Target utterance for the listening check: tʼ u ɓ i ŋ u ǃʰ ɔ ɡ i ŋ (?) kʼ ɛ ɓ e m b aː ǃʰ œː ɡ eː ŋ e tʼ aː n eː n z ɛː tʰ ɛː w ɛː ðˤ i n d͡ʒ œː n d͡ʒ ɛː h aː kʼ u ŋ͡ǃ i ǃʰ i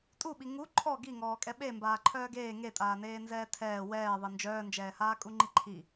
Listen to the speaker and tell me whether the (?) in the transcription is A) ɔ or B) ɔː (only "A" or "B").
B